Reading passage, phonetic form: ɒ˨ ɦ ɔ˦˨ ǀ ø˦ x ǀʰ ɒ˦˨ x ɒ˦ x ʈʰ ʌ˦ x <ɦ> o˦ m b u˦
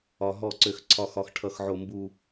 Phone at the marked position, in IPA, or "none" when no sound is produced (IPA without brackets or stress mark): ʕ